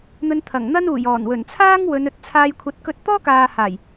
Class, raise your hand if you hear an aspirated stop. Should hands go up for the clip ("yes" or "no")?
yes